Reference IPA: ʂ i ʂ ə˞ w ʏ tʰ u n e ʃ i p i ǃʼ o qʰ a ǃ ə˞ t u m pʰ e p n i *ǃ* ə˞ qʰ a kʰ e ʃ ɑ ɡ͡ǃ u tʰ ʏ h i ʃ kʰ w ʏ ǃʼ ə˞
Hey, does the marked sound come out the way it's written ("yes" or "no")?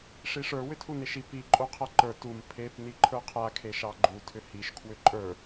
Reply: no